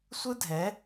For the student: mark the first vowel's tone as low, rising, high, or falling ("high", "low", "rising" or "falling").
high